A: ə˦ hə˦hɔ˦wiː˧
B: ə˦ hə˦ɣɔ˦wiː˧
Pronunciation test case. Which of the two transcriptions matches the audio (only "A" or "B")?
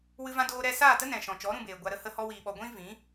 A